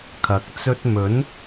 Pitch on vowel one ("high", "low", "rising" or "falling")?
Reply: rising